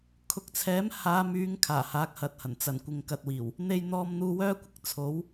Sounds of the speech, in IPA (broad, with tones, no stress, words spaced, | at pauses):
kʰʊ˨˥k̚t͡sʰɛː˨˥m haː˨˧myː˨˧ŋ kʰaː˨˩haː˨˥k̚hɐ˨˥t̚hɐ˨˩n t͡sɐ˨˩n kʷɪ˨ŋkɐ˨t̚wiː˨˩w | n̪e˧jn̪ɔː˧mn̪uː˧ wœː˥kʷɪ˨k̚ t͡sʰo˨˥w